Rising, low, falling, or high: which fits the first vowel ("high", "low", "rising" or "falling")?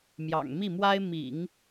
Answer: low